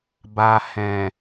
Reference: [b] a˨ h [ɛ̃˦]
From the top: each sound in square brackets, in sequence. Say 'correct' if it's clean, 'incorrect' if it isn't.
correct, incorrect

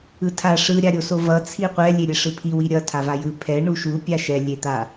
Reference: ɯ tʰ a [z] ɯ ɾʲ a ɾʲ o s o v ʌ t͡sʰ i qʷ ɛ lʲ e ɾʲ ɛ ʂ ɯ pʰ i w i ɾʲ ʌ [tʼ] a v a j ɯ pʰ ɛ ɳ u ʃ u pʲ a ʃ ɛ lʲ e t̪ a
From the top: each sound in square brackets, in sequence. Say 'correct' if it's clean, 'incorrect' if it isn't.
incorrect, incorrect

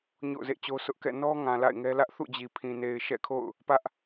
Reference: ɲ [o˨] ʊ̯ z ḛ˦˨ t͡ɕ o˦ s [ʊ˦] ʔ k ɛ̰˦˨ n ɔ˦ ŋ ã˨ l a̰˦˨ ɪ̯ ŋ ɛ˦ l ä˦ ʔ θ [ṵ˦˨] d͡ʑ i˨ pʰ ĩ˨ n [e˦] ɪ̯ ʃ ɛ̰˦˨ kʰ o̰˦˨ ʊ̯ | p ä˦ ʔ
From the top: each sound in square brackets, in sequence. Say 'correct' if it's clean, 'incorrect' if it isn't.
incorrect, correct, correct, incorrect

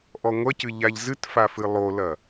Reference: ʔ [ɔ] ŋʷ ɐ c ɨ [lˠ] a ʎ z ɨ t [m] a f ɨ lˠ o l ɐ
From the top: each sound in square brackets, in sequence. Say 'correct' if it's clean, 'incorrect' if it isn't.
correct, incorrect, incorrect

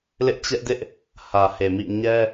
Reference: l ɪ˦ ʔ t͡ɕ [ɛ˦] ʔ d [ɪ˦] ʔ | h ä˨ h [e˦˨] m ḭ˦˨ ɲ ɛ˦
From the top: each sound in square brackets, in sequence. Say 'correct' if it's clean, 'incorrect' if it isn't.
correct, correct, incorrect

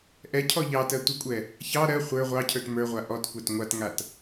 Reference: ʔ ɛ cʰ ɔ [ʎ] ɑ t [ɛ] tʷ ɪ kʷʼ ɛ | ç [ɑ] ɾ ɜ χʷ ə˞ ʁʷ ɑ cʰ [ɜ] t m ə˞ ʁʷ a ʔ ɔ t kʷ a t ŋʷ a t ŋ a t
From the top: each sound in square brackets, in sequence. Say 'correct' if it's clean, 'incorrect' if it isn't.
correct, incorrect, correct, incorrect

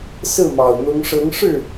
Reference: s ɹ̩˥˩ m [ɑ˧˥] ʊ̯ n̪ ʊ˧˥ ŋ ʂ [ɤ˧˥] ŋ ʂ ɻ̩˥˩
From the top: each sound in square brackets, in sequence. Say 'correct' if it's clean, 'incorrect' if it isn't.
incorrect, correct

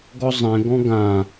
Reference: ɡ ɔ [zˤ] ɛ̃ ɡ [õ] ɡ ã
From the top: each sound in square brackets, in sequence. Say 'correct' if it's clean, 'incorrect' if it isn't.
correct, incorrect

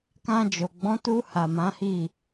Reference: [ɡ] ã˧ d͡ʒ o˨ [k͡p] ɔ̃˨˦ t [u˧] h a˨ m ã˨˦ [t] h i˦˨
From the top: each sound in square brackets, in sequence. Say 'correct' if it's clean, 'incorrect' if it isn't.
incorrect, incorrect, correct, incorrect

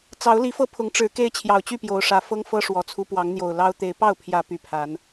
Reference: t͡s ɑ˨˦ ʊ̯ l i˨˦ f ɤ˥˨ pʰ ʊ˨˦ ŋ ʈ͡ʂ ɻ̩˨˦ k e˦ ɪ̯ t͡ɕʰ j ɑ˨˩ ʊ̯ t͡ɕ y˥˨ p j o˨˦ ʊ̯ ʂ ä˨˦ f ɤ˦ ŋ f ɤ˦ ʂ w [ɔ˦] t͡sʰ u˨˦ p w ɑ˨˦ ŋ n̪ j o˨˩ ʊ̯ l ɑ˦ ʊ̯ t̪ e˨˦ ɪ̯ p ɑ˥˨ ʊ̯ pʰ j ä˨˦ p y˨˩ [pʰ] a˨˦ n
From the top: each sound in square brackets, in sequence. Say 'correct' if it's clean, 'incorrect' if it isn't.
incorrect, correct

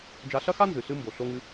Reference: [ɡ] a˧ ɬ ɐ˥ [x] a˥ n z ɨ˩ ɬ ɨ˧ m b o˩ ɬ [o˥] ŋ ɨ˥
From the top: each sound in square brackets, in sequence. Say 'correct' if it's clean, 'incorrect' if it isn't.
incorrect, correct, correct

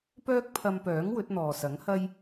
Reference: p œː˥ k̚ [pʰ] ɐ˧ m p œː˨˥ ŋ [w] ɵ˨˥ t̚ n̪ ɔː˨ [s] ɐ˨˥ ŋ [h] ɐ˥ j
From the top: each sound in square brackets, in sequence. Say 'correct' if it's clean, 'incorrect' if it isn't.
correct, correct, correct, correct

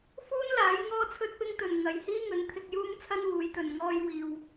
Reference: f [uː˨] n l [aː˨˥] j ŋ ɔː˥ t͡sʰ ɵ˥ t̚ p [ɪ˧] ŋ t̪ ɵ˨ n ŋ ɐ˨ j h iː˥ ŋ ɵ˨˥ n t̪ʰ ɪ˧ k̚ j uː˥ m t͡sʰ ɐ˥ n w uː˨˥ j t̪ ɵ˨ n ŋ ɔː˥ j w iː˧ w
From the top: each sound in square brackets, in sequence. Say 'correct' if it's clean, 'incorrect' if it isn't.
incorrect, correct, incorrect

